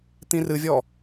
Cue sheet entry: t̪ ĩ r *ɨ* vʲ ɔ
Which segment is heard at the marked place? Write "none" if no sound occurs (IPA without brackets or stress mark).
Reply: ɨ